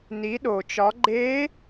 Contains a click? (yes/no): yes